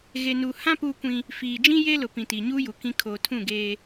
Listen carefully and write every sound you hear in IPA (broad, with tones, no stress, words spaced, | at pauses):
ɣe˨nuː˨hã˦ puː˦kʷĩ˦ | fiː˨d͡ʒĩ˦ je˦lʊ˨ pĩ˨ti˨ɲuː˦ju˨ kĩ˦ kʰoː˨tʰũ˦˨ɡeː˦